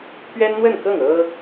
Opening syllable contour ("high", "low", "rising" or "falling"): high